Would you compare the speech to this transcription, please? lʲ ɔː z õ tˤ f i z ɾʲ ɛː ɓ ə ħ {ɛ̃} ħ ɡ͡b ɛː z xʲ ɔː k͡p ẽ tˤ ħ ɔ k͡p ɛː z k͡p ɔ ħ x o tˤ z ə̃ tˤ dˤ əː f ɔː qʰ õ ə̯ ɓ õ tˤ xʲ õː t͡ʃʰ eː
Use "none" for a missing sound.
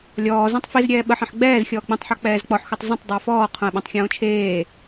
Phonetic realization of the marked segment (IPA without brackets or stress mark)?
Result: ɛ̃